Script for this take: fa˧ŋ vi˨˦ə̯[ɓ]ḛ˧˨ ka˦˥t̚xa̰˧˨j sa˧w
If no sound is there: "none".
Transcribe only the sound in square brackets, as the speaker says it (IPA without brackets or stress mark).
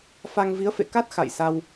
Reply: f